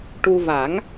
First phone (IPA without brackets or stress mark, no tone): ʈ